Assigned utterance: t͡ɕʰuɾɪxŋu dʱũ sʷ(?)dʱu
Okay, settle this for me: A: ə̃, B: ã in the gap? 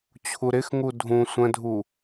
A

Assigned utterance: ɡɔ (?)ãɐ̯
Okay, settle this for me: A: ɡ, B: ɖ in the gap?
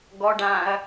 B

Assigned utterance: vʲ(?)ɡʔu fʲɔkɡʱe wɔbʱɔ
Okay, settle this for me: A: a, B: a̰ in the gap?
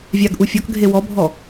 A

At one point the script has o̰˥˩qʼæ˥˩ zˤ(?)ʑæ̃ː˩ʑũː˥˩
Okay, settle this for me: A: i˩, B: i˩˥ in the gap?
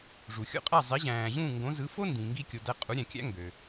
B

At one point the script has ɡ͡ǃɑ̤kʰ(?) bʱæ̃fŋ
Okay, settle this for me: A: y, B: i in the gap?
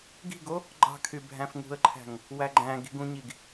A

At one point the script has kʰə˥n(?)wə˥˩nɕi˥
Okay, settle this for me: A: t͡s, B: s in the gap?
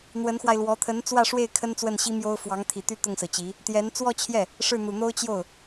A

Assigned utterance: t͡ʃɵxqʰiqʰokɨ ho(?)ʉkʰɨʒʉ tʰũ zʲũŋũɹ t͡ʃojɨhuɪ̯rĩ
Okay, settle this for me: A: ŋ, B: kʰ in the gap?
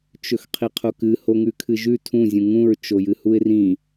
A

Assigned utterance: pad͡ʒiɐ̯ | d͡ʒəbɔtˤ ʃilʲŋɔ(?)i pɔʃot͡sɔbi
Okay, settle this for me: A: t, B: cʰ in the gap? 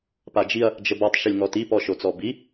A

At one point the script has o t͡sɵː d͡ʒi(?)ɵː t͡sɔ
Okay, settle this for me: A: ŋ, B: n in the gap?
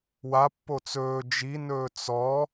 B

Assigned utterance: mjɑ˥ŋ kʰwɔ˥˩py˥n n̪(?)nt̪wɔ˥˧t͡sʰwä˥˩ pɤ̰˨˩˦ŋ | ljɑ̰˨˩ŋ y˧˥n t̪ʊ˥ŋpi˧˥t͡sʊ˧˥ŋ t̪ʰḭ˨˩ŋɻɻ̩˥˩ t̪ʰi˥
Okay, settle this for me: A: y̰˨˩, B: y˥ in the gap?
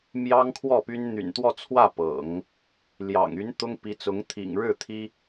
A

